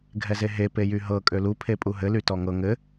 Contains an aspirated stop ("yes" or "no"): yes